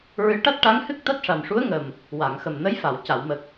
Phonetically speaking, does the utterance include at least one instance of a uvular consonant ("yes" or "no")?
no